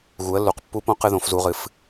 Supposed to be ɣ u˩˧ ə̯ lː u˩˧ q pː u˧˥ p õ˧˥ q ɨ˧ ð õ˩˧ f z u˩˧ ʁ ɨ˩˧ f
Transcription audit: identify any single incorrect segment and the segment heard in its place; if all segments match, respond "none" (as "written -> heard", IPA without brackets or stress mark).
none